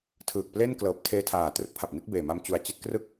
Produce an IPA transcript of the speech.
tʰ ɯː˨˩ k̚ p l e˥˩ n k l ɤː˨˩ p̚ tʰ eː˧ tʰ aː˨˩ t r ɯ˦˥ k̚ pʰ a˨˩ p̚ n i˥˩ t̚ b eː˨˩ m a˧ m t͡ɕ u˨˩ a̯ t͡ɕ i˦˥ t̚ k r ɯ˥˩ k̚

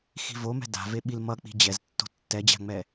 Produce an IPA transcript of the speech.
x i̤ v o m ɛ̤ d a̤ v e ɓ i l m ʌ k͡p i̤ d͡ʑ ɛ z tː o̤ tː ɛ d͡ʑ a̤ ŋ͡m ɛ

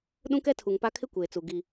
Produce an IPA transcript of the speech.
ɗ ũ˦ k ɛ˦ tʰ u˨ ŋ p a˦ kʰ ɪ˦ kʷ eː˨ t͡s u˨ ɡ i˦

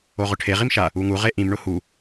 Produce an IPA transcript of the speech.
o ʁ ʊ ʈʰ e ʁ i m ʃ a | u ŋ u ʁ e ʔ ĩ m ɳ ʊ h u

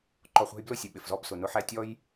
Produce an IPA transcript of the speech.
ǃ ɔ˨ χʷ æ̤˧ j b l ʊ˦˨ sʲ ʊ˨ ɓ ɪ˨ f z ɔ˧ b s ʊ˨ n ʊ˧ ħ æ˦ tʲ ɔ˦ j

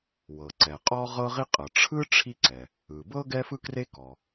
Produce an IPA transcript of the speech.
w ɤ˩ ǀ ɛ˩ qʼ ɔ˥ ʁ ɤ˥ ʁ i˥ qʼ ɤ˩ ʈ͡ʂʰ ɯ˥ ʈ͡ʂʰ i˥ ǀ ɛ˩ | ɯ˩ b ɤ˥ ɡ ɛ˥ f ɯ˥ k r e˥ k ɔ˩

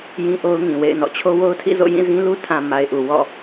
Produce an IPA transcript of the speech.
j ĩ˦ ʔ o˦ ʊ̯ ŋ ĩ˨ w ḛ˦˨ ɪ̯ n ɔ̰˦˨ t͡ɕʰ o˦ w o˦ ʊ̯ tʰ ḭ˦˨ z o̰˦˨ j ĩ˦˨ z ĩ˦ l u˦ tʰ ã˨ m a˨ ɪ̯ ʔ u˨ w ɔ̰˦˨

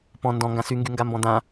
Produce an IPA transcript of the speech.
p ɔ̃ n d ɔ̃ ŋ ɡ ã s y ŋ ɡ y ŋ ɡ a m b ɔ̃ d̪ ã

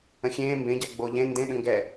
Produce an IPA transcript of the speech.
ə̃ xʲ ẽː m b ẽ ɟ a ɡ͡b o ʎ ẽ n d ẽ ɗ ə̃ ŋ ɡ ɛ

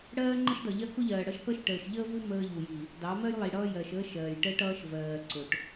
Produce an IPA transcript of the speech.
ɽ ɜː˦ ŋ͡ǃ ə˦ ʃ d ʌ˨ ʎ ɜ˦ k ʊ˦ ʎ ɜː˨ ɽ ʌ˦ ʃ k ʌ˦ ʃ ʈ əː˨ ʃ ʎ əː˦ v u˦ m əː˦ ʎ u˨ j i˨ | d ɑ˨˦ m ɜ˦ j lˠ i˨ ɽ ʌː˦ j ɜ˨ ʃ əː˦ ʃ ɜː˨ j ʈ əː˦ ʈ ʌː˦ ʃ v ɜː˨ ǀ ʊ˨ ʈ

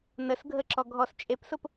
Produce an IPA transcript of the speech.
n ə s ɡʱ ə ǁ ɔ ɡʱ ɔ s t͡ʃʼ e p s ʊ p

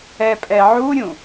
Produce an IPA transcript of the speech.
ɛ pʼ ɛ ʕ u ɾʲ ũ

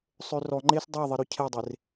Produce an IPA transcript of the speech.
sˤ ø r ɔ ŋ͡ǃ e s dˤ e ə̯ ðˤ i ɾ ɵ cʰ ɛ dˤ e r

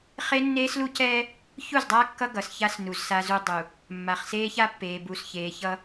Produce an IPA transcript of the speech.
χ e˦ nː eː˦ s l u˦ c ɛː˦ | ç u˦˨ z dˤ aː˦ kː ʌ˦ ɡ ʌ˨ s ç a˦ s n u˨ z s a˦ z u˦ dˤ u˨ | mː a˨ χ s eː˦ ç a˦ pː eː˨ b u˨ s ç eː˨ ç ʌ˦

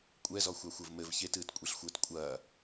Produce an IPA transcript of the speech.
kʷʼ ɛ z ɔ xʷ a xʷ ɘ v m ɘ v ç e t ɨː t kʷʼ e ɬ xʷ ɘː t kʷʼ ɐː

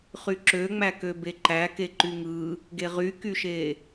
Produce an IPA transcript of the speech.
χ y ǁ ø ŋ͡m æ k ø b e ǃ æ k e ǃ y ŋ ɯ | ɡ e ʁ y k y ʃ e

